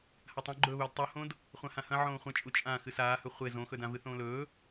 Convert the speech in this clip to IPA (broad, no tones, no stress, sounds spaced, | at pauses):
h a tˤ õ ɡ͡ǃ ɵː β ɵː d tˤ u h õ d | χʷ ã h ã h ɐ̃ ʕ õː χʷ ɐ̃ t͡ʃʼ u t͡ʃʼ ã x ɨ s aː h ɵ χʷ e z õ x ɵ d ã v ɨ θ õː l ɵː